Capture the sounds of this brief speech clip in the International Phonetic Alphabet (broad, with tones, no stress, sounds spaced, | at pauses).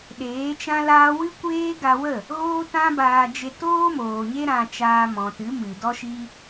ɗ eː˨˦ t͡ʃ ã˦ l aː˦ w ɨ˦ kʷ eː˦ ɡ a˧ w ə˦˨ | ɣ oː˦ t ã˦ b aː˧ d͡ʒ e˧ t oː˦ m oː˨ ɲ e˦ ɾ ã˧ t͡ʃ aː˧ m ɔ̃˨ t ɨ˨˦ m ɨ˨ d ɔ˦ ʃ i˦